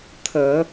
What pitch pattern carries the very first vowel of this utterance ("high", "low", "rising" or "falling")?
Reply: low